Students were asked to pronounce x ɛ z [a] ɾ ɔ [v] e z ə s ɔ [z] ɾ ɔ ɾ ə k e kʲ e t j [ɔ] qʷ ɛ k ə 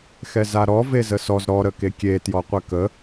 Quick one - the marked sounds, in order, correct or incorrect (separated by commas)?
correct, correct, correct, correct